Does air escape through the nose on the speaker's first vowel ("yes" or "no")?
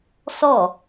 no